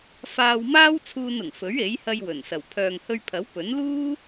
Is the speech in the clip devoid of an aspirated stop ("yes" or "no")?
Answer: no